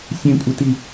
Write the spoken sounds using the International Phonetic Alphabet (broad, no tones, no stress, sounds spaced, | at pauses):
sʲ ẽ kʷʼ ɪ t i